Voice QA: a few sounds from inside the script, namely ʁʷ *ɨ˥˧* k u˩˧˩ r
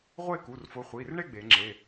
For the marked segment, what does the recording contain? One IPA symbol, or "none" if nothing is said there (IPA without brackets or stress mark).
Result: e˥˧